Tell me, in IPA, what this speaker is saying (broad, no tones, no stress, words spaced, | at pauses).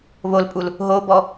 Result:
βolpʼul | ɦobɔ